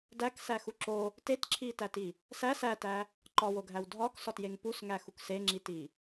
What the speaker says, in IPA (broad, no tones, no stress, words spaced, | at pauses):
dæksæxu ǁo | tetǁʰitæti | sæ sætæ | ǃɒwoɡʱæw dʱɒksɒtjeŋ pusŋæxuk seŋ͡ǁiti